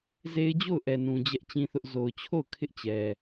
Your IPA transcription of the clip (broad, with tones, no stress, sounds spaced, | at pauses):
z e˦ ɪ̯ d͡ʑ o˦˨ ʊ̯ ʔ ɛ˨ n ũ˨ d͡ʑ ɛ˦ ʔ t͡ɕ ĩ˦ θ ʊ˦ ʔ z o˨ ʊ̯ t͡ɕʰ o˦˨ ʊ̯ kʰ ɪ˦ ʔ t͡ɕ ɛ˨